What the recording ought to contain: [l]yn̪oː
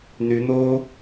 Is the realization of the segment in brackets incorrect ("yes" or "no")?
yes